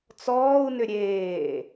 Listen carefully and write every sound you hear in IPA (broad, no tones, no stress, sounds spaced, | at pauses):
t͡s ɔː u̯ n ʏ ɾʲ eː